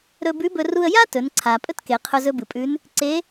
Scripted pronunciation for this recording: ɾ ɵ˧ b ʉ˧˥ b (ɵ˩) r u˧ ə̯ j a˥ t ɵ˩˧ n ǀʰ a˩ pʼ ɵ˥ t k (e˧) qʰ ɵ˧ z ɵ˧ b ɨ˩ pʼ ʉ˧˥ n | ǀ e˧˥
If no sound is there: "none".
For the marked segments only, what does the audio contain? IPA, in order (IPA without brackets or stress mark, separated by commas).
ɵ˧, e˩˧